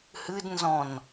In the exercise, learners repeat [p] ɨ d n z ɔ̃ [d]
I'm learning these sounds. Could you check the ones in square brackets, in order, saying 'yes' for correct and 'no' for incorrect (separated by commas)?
no, no